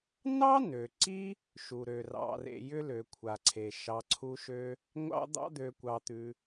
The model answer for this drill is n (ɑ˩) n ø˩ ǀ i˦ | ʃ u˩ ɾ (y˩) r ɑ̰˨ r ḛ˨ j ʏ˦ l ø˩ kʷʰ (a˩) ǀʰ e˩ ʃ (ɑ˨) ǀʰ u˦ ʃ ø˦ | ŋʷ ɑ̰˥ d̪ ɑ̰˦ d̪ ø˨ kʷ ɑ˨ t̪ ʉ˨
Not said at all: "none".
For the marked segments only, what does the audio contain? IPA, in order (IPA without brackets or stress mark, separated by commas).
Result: ɑ˥, ø˩, a˩, ɑ˨